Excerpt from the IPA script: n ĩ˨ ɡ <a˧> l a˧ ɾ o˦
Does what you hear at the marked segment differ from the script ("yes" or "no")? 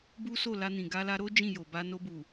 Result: no